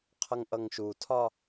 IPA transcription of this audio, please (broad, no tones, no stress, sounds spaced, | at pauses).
qʰ ʌ ŋ ʔ ʌ ŋ ʃ u tʰ ɒ